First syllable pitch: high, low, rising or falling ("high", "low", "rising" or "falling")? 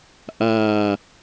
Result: low